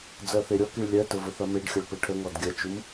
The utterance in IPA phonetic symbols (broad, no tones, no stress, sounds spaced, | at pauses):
d͡z ɜ θ e ɾʲ ɔ k i ɭ lʲ ɜ t ə v ə θ ɐ m e ɖ xʲ ʌ ɭ p ə ʈʰ ə ŋ ɔ d ɡʲ ɐ t͡ʃ u m